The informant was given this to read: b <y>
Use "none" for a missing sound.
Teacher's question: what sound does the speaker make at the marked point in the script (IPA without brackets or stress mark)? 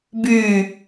y